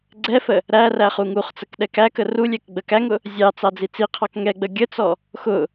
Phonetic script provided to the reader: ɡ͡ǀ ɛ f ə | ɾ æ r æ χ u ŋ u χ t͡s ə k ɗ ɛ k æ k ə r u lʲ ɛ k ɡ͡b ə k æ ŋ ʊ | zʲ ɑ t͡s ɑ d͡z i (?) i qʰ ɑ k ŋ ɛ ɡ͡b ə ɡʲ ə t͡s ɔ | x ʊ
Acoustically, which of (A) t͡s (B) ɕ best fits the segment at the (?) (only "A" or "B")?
A